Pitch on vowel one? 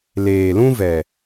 low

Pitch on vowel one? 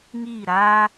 falling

